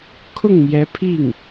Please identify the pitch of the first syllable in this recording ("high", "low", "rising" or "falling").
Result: falling